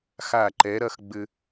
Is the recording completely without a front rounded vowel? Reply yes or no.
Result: yes